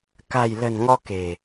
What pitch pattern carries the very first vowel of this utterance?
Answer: low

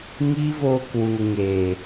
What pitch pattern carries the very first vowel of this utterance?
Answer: high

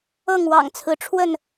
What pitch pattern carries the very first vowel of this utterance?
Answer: falling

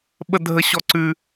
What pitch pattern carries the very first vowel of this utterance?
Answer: high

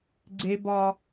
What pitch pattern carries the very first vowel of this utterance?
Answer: high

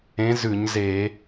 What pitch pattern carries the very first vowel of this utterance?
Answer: rising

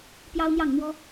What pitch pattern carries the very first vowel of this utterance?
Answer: high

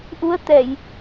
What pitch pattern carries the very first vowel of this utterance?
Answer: rising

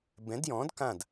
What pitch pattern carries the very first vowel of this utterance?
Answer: rising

